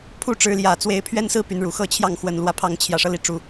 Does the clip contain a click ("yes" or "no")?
no